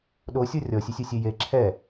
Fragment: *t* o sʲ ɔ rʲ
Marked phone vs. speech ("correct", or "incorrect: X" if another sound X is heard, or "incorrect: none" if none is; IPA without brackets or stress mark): incorrect: ɗ